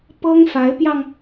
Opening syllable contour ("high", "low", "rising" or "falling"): high